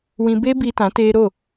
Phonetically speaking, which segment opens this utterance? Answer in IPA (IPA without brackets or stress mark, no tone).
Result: w